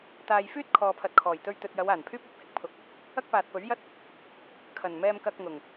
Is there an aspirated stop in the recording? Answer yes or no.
yes